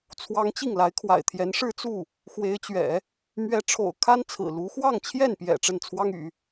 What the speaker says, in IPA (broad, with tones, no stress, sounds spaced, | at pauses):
t͡sʰ w ɑ˥ ŋ t͡ɕ i˥˩ ŋ l a˧˥ ɪ̯ kʰ w a̰˨˩ ɪ̯ t̪ʰ j ɛ˧˥ n ʂ ɻ̩˥˧ t͡s u˥˩ | x w e˧˥ ɪ̯ t͡ɕ ɥ ɛ̰˨˩˦ | m ɥ ɛ˧˥ ʈ͡ʂʰ o̰˨˩ ʊ̯ kʰ a˥ n t͡sʰ ɹ̩˨˩ l u˧˥ x w ɑ˥˧ ŋ t͡ɕʰ j ɛ˥˩ n p j ɛ̰˨˩ ʈ͡ʂ ə˥˩ n t͡sʰ w ɑ˥ ŋ y̰˨˩˦